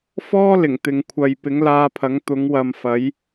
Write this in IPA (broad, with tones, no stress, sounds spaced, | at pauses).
f ɔː˥ l ɪ˨˩ ŋ t̪ ɪ˨ ŋ kʷʰ ɐ˨ j p ɪ˨˥ ŋ l aː˧ pʰ ɐ˨˥ ŋ t̪ ʊ˨˥ ŋ w ɐ˨ m f ɐ˨˥ j